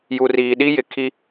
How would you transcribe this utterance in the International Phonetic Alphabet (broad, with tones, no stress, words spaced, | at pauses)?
ju˨riː˨ɗi˦ jɪ˨ kʰi˦